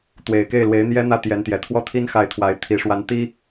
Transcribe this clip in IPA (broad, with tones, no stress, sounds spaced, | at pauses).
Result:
t̪ w e˨˩ ɪ̯ k e˥˩ ɪ̯ l w e˧˥ ɪ̯ n̪ j ɛ˥ n̪ ä˥ t̪ j ɛ˧˥ n t̪ j ɛ˨˩ t̪ʰ w ɔ˥˩ t̪ʰ i˥ n x a˥˩ ɪ̯ t̪ʰ w a˧˥ ɪ̯ t̪ʰ i˨˩ ʂ w a˧˥ n t̪ i˥